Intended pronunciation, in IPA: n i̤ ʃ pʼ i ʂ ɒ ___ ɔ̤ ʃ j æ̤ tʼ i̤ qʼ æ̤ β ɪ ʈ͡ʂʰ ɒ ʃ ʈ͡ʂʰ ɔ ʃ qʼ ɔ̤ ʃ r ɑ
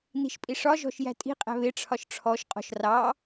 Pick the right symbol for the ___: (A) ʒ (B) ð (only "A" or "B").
A